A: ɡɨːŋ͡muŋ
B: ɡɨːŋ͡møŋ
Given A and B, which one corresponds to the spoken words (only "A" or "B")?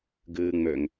B